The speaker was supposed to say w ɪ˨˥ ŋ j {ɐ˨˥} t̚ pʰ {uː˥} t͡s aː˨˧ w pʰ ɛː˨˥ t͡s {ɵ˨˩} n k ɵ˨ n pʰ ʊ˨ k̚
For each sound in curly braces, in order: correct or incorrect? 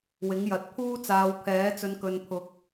correct, correct, incorrect: ɵ˨˧

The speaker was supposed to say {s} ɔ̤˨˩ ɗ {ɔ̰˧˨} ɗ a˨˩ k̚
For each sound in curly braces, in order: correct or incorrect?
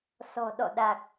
correct, correct

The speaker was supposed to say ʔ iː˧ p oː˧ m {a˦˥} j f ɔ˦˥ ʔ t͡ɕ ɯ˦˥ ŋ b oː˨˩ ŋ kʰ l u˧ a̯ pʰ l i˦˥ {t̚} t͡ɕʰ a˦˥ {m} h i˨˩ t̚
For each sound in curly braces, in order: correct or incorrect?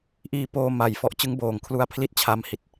incorrect: a˨˩, correct, correct

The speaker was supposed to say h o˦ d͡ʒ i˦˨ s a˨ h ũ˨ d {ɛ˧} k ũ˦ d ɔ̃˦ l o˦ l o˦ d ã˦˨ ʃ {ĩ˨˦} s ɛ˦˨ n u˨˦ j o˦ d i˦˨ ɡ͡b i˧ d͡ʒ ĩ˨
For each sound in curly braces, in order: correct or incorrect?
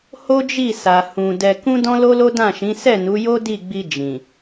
correct, correct

